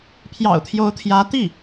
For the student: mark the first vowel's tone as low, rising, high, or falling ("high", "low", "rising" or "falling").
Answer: low